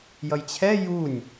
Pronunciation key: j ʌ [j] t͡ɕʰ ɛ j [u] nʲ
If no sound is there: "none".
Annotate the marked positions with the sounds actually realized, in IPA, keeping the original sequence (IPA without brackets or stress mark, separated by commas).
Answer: j, u